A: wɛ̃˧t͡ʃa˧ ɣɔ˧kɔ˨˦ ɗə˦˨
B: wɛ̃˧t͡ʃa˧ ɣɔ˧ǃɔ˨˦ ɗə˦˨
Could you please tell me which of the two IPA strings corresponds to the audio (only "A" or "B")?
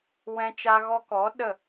A